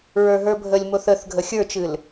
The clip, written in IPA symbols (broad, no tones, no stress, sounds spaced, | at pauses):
ɹ ə˞ ɦ ə˞ bʱ ə lʲ m o θ ə θ ɡʱ ə xʲ ə˞ t͡ʃ ɨ l